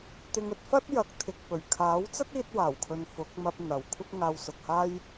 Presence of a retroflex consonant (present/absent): absent